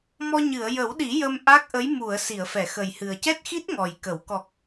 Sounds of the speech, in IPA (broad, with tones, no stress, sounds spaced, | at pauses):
m ɔ˧ ɲ ɨ˨˩˨ ə̯ j ə˨˩˦ w ɗ i˨˩˦ j ə˧ m ʔ a˦˥ k̚ ʔ ə˧˥ j m u˨˩˨ ə̯ s i˨˩˨ ə̯ f ɛ˨˩˨ x ə˨˩ j h ɨ˨˩ ə̯ c ɛ˦˥ t̚ x i˦˥ t̚ ŋ ɔ˨˩ j k ə˨˩˦ w k ɔ˨˩ k̚